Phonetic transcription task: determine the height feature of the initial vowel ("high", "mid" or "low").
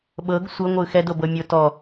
mid